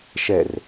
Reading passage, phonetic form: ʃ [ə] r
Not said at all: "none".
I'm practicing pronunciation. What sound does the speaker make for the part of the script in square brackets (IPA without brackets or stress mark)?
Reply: ɛ